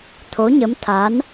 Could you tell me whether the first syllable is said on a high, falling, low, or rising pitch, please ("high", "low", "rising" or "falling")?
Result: rising